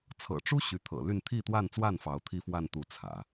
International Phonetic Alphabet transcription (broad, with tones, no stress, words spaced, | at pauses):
t͡sʰɤ̰˨˩ʈ͡ʂu˥ ɕy˧˥t̪ʰɤ̰˨˩ ly˥˧n t̪ʰi˥˧t̪wa˥˧nt͡swa˥˩n fɑ˧˥ʊ̯t̪ʰi˥fwa˥˧n t̪u˥˩t͡sʰä̰˨˩˦